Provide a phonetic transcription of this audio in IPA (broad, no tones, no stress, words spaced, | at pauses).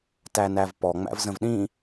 tænævpɔ ŋ͡mæ̰vzə̃vɗĩ